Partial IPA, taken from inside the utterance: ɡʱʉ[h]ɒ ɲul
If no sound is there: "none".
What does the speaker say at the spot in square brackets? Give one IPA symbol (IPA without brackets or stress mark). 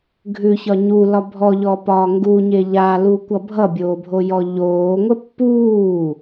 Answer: ç